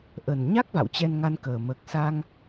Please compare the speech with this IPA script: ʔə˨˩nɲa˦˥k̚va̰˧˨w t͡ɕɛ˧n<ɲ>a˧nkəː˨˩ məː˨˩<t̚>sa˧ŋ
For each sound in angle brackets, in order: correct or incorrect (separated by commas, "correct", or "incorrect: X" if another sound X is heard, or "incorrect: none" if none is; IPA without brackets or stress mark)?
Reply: incorrect: ŋ, incorrect: k̚